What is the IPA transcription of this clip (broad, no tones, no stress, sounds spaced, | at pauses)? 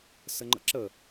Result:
s ə ŋ͡ǃ ə̰ ǁ ə